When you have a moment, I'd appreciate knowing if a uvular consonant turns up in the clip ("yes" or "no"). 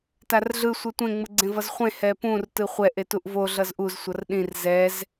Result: yes